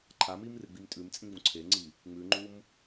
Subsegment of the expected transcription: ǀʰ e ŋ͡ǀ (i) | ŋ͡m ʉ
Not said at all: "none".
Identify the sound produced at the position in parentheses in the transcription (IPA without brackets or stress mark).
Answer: i